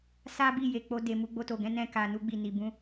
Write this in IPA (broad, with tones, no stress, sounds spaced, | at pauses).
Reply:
s a˦ b i˦˨ j e˨ k͡p o˧ d e˨ m u˧ ɡ͡b o˧ t o˨ ɡ ɛ̃˨˦ n ɛ̃˧ k a˨ n u˧ ɡ͡b i˨ n i˨ b ũ˧